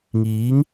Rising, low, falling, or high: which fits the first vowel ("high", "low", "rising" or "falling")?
rising